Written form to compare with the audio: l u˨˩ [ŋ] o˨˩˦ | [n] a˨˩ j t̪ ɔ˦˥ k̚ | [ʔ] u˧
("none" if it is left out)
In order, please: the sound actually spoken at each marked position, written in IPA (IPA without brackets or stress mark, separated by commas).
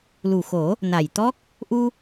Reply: x, n, ʔ